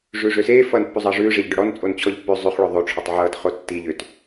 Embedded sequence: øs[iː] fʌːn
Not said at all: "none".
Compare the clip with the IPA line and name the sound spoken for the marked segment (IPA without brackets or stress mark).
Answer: eː